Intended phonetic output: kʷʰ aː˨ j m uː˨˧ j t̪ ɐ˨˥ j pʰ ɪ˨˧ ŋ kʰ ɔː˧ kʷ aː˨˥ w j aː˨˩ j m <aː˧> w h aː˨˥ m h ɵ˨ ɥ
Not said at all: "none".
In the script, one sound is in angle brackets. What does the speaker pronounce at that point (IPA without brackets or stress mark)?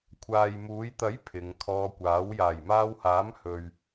aː˧